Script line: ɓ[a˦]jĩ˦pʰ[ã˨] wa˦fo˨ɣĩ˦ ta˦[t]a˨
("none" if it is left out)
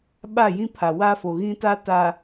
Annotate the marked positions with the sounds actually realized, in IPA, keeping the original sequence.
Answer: a˦˨, a˨, t

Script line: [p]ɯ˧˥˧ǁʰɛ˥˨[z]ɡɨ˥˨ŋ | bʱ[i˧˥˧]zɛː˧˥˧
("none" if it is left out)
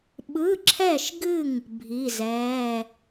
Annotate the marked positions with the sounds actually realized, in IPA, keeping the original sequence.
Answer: ɓ, ʃ, i˧˥˧

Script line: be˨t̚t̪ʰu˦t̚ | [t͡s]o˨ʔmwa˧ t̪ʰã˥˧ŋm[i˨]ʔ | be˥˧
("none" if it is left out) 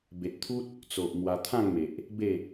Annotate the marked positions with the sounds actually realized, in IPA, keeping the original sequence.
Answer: t͡s, e˨

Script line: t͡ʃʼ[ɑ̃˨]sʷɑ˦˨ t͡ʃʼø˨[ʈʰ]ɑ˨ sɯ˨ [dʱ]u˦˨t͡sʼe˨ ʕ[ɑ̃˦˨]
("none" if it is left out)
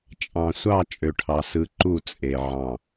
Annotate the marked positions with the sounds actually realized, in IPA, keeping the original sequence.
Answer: ɑ̃˨, ʈʰ, ǃ, ɑ̃˦˨

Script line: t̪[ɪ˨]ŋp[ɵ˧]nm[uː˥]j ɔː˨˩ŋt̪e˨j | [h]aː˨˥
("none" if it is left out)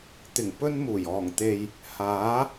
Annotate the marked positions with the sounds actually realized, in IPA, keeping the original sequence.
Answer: ɪ˨˩, ɵ˧, uː˨˩, h

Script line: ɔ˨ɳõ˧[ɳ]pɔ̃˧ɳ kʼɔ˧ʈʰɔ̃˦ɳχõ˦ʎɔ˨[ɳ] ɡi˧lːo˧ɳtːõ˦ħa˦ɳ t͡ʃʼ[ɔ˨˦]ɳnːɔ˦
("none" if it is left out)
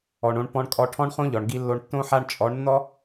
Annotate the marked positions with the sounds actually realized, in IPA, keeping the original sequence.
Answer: ɳ, ɳ, ɔ˨˦

